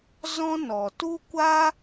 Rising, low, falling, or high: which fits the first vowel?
high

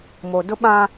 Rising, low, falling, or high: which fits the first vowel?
low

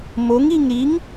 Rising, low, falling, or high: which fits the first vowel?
rising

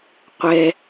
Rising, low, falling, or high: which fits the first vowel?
high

